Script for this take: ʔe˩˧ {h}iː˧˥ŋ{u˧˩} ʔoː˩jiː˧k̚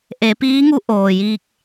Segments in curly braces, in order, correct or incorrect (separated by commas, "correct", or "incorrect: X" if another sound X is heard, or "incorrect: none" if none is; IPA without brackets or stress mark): incorrect: p, incorrect: u˧˥